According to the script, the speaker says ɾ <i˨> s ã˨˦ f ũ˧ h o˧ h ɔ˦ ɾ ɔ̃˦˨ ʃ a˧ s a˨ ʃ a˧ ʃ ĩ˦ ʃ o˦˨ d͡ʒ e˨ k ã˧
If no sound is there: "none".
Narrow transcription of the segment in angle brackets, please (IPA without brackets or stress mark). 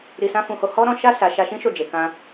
i˨